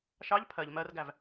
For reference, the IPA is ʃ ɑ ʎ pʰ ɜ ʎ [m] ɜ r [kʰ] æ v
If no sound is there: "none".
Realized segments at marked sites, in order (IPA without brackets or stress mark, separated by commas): m, ɡ